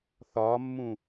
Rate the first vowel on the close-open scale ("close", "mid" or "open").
open